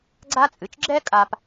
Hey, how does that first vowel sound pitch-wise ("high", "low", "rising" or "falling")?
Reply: high